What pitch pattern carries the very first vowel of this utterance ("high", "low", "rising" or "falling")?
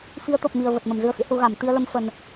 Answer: rising